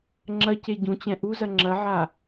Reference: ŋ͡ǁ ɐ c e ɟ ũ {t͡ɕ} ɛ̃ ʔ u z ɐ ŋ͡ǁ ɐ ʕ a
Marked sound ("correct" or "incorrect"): correct